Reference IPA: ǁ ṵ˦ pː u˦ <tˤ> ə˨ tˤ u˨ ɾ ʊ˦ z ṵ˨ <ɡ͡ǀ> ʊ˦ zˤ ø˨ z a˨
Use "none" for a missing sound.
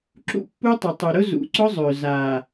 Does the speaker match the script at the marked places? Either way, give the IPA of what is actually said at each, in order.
tˤ, ǀ

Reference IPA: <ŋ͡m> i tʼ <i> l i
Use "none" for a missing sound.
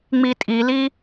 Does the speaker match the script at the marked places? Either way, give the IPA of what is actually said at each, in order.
ŋ͡m, i

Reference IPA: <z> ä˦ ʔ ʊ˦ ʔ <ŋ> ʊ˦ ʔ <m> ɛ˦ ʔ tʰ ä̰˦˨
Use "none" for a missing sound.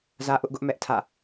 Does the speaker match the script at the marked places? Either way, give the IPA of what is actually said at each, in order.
z, ɡ, m

